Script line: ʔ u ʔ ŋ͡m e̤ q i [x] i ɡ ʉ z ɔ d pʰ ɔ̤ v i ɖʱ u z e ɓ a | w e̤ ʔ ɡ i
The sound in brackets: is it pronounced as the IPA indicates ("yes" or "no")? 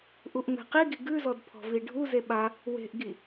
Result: no